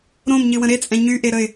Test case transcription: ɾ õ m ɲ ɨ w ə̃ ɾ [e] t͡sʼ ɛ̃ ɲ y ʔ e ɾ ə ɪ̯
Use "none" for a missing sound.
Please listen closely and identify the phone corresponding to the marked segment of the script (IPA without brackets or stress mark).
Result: e